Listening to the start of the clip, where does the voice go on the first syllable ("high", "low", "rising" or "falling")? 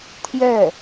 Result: falling